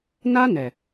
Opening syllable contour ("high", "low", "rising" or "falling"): high